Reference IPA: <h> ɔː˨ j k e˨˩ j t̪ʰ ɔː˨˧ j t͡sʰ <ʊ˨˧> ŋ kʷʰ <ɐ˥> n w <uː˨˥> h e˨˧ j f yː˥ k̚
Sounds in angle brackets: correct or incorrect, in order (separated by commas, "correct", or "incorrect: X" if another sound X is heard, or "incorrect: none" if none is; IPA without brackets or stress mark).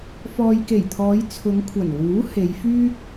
incorrect: f, correct, incorrect: ɐ˨˩, correct